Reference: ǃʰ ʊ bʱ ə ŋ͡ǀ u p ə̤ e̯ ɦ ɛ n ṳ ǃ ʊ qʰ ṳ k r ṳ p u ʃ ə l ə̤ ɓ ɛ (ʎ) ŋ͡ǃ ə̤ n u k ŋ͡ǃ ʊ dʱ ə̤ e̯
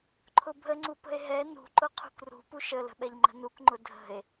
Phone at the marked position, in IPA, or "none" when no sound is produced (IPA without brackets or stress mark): ʎ